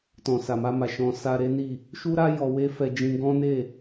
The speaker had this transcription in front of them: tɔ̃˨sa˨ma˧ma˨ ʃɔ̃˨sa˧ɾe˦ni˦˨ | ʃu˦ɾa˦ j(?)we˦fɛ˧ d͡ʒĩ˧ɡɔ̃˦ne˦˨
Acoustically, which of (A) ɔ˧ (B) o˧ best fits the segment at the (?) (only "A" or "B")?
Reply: A